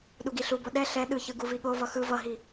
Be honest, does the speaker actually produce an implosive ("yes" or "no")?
yes